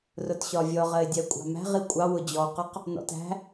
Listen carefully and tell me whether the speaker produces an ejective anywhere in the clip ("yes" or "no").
yes